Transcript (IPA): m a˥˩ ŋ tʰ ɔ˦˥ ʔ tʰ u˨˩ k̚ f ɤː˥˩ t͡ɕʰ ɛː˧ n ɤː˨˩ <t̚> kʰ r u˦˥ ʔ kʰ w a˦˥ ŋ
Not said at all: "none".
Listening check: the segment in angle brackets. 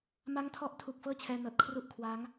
t̚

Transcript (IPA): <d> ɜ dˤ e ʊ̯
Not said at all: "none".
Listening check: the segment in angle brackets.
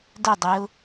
d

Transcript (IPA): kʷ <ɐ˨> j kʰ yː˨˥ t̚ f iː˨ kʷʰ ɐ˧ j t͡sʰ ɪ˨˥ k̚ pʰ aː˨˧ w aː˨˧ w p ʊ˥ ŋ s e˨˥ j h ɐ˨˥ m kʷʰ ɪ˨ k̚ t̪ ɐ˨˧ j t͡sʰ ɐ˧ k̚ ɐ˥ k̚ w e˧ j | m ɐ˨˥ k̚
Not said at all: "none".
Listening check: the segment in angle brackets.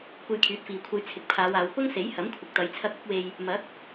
ɐ˧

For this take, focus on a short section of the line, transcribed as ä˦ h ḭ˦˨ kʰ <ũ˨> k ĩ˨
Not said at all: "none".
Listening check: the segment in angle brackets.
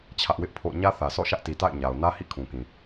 ũ˨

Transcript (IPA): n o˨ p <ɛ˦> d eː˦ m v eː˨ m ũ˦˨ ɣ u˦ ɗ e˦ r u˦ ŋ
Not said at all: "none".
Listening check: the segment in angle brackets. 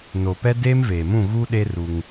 ɛ˦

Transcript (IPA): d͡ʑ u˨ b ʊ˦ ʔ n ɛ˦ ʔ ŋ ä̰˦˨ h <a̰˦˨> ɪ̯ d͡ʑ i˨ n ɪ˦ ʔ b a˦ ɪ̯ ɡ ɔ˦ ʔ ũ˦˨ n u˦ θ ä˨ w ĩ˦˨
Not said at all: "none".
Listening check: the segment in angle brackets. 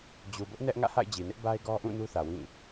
a̰˦˨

